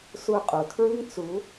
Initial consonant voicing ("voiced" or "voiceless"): voiceless